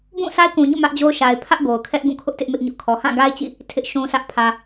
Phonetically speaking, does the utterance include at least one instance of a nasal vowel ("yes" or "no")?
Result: yes